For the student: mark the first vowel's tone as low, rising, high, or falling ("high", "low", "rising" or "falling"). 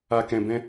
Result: low